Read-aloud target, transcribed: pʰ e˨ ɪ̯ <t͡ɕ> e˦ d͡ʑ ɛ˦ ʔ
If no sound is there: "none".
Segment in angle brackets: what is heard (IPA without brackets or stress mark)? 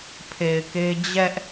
k